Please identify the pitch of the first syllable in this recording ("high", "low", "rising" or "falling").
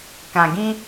low